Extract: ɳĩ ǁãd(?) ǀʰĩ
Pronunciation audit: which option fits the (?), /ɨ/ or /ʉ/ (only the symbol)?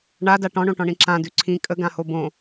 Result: ʉ